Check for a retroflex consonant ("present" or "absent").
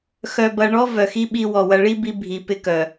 present